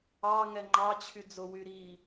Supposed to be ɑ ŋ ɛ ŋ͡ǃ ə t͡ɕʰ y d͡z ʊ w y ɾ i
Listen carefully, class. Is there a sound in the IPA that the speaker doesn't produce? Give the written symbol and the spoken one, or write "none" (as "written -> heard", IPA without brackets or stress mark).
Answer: ə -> ɑ